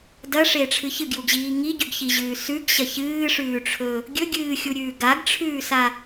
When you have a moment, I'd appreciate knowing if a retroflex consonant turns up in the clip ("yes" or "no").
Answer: yes